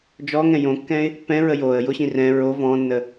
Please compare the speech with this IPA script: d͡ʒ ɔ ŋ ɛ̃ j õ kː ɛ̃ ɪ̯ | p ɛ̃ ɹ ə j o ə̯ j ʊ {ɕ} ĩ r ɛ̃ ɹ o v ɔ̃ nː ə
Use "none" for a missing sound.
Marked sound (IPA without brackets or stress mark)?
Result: ɕ